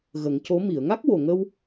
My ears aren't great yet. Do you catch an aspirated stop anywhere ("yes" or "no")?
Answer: no